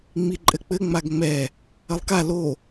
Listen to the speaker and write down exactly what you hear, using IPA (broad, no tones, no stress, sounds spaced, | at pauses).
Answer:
ŋ͡m i ǃʼ ɘ k͡p ɘ ŋ͡m a ɡ ŋ͡m ɛ | ɐ lˠ k a l o